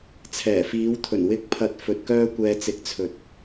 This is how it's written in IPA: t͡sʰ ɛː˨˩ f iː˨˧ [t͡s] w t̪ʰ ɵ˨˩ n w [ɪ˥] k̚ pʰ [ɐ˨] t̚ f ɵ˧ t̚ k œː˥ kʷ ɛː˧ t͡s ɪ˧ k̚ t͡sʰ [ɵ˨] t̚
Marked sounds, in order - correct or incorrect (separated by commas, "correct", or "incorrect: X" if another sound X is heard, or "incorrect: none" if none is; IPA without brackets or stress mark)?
incorrect: none, incorrect: ɪ˨˥, correct, correct